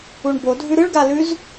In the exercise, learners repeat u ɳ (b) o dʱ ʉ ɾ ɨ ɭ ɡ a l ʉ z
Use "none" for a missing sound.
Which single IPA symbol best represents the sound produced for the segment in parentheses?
b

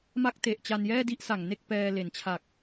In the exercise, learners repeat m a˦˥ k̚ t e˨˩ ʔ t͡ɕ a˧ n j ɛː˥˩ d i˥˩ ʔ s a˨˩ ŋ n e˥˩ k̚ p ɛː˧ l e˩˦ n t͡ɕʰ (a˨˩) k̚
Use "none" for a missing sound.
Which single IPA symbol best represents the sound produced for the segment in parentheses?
a˨˩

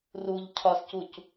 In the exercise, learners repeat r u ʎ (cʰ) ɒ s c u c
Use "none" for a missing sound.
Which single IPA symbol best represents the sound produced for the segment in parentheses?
cʰ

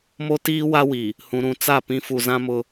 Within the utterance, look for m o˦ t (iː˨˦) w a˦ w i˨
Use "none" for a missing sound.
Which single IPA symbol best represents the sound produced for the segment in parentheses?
iː˦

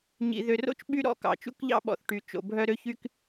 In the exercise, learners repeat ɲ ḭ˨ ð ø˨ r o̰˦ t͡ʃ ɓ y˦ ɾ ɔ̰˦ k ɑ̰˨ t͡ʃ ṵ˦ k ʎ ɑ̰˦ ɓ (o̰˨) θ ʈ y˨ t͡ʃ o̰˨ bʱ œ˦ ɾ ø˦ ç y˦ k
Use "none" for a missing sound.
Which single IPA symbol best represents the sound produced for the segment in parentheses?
ɔ̰˨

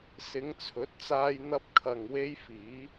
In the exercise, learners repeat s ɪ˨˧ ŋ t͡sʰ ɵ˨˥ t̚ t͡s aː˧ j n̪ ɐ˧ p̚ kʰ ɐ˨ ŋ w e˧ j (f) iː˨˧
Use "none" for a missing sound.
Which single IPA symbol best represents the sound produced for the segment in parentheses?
f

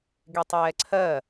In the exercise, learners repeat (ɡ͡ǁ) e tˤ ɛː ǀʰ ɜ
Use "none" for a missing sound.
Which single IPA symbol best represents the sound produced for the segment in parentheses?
ɡ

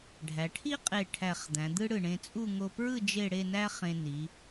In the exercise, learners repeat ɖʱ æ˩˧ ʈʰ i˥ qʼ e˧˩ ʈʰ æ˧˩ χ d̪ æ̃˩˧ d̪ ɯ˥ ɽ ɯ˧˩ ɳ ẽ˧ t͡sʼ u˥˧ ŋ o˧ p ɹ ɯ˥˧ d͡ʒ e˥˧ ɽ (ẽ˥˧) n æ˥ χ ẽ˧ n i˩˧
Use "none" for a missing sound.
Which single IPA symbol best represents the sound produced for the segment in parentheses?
e˥˧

